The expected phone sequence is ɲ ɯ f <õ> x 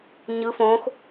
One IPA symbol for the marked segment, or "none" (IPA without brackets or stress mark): õ